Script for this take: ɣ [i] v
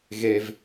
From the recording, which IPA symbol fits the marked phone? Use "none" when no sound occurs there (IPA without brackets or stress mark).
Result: e